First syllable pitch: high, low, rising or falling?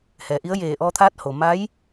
low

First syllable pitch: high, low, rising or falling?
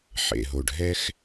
low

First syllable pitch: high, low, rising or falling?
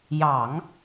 low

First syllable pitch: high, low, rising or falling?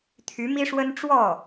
rising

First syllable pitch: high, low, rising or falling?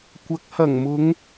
rising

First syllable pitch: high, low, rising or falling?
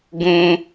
high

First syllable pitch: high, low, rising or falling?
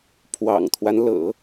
low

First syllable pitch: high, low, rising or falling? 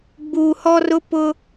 low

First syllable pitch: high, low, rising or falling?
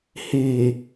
low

